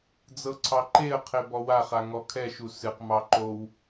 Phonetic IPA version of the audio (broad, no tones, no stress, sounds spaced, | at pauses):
d͡z ɤ ǀʰ ɑ ǃ e ə̯ qʰ e b ɔ w a χ a ŋ ɔ kʰ ɛ ʃ u s ɨ q m ɑ ǃ o w